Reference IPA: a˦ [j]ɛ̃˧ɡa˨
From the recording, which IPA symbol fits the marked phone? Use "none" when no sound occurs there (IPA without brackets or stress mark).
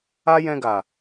j